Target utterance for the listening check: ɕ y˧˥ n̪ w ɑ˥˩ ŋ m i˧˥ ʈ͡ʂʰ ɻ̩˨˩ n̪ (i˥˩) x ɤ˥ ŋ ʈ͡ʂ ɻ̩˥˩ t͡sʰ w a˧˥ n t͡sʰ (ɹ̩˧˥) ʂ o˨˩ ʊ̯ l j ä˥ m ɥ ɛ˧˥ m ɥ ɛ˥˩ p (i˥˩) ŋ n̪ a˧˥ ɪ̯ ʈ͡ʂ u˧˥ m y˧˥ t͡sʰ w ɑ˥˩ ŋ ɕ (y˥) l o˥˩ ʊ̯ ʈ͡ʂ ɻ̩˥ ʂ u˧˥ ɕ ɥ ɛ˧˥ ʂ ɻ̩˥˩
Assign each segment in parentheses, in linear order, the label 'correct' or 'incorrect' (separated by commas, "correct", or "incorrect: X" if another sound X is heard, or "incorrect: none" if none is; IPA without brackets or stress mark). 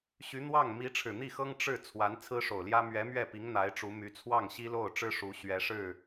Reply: correct, incorrect: ɹ̩˥, incorrect: i˧˥, incorrect: i˥